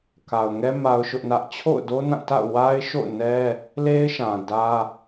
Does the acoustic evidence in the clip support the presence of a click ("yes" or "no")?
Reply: no